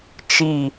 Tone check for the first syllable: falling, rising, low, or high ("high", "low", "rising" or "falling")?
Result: falling